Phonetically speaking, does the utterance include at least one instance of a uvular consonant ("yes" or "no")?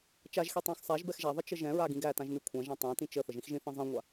no